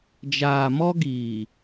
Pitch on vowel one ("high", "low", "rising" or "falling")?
low